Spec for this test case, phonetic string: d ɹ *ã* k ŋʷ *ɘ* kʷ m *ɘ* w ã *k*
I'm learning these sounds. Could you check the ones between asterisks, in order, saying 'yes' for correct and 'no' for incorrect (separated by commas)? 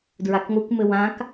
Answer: no, no, yes, yes